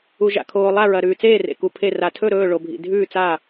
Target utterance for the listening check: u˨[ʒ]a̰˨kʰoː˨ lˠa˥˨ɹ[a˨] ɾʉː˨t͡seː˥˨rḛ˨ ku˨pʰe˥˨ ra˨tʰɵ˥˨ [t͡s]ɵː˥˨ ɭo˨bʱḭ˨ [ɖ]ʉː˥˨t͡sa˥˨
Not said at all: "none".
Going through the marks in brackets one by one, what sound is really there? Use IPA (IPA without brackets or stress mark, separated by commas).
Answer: ʒ, ɐ˨, ɾ, dʱ